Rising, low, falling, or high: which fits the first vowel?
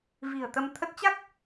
low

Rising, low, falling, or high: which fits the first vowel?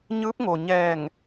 rising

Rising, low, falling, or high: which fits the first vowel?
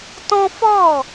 high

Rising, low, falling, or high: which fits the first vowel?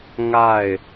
falling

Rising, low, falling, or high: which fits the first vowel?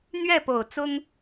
falling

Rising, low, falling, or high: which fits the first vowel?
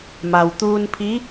low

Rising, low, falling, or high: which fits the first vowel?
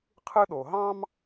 high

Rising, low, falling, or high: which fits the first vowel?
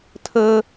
high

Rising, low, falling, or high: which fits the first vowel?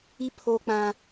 high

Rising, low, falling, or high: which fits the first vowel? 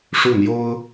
falling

